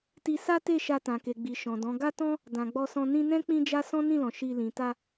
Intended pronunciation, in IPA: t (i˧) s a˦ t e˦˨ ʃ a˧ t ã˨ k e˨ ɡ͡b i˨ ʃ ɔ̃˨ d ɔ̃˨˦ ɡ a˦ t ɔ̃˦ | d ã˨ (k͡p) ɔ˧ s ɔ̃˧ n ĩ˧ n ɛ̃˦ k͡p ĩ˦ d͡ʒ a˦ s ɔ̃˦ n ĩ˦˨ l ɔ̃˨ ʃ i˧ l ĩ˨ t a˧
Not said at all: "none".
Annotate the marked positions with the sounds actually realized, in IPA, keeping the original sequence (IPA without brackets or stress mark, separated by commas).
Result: i˧, ɡ͡b